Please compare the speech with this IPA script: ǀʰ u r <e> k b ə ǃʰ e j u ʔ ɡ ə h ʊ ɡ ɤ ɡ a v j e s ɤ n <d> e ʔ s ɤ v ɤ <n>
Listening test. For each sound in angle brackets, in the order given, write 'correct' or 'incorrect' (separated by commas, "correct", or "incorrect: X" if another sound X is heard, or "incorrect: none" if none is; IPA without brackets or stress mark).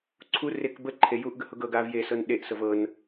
correct, incorrect: ɗ, correct